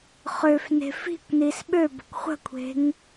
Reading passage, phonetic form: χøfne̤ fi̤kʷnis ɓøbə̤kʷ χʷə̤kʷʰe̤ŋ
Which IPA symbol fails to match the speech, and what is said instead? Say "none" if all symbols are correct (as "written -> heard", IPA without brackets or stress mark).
none